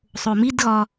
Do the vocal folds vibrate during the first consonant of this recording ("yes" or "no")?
no